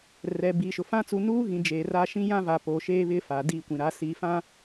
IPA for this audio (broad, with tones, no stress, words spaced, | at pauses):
rɛ˨biː˨ʃʊ˨fã˦ t͡su˨nuː˦ɣĩ˨ d͡ʒeː˨ra˦ʃĩ˦ jã˦va˨ poː˨ʃeː˦βɪ˦ fa˨diː˦˨kʷĩ˨ɾa˨˦ siː˨fã˦